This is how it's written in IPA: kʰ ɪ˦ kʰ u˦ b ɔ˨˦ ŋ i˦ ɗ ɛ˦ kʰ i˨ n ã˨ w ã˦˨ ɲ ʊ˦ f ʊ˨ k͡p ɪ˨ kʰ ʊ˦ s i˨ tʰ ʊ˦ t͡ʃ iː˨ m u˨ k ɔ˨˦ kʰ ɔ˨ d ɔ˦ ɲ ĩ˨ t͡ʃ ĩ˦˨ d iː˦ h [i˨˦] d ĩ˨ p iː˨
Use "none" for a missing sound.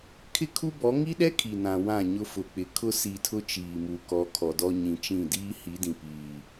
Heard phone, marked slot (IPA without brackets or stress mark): i˨˦